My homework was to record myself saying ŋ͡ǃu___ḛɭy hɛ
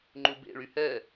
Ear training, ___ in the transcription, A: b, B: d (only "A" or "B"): A